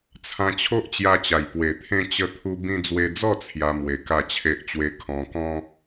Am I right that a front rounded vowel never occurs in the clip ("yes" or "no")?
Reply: yes